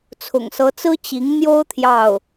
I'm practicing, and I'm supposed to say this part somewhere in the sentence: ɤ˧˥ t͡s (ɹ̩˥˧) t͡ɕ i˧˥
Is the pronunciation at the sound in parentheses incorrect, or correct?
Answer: incorrect: ɹ̩˥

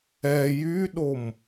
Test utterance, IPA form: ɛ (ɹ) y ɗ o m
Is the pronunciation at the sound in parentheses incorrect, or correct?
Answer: incorrect: j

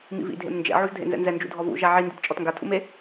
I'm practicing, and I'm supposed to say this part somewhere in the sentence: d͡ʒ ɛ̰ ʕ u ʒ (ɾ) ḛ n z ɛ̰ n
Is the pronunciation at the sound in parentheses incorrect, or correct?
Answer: incorrect: dʱ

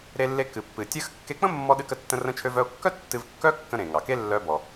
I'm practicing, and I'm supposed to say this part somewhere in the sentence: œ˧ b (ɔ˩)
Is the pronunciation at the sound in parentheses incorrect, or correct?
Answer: correct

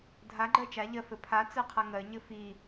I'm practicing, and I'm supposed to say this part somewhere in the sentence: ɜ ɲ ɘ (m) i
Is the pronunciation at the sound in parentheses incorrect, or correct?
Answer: incorrect: f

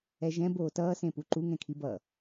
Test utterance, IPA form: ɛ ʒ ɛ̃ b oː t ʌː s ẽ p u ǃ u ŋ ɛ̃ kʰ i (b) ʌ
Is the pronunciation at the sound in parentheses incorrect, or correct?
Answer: correct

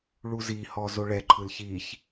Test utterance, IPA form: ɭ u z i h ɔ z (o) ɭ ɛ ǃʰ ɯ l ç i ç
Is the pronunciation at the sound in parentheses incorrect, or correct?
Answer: correct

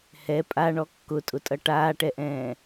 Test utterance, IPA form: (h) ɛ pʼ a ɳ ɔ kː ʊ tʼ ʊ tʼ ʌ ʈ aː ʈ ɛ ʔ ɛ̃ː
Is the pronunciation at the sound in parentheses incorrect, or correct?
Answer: correct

